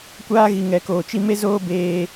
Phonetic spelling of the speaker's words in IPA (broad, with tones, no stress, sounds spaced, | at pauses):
kʷ aː˦ ɣ i˨ ŋ ɛ˨ k oː˨ t͡ʃ i˦ m e˦ z oː˦ b eː˦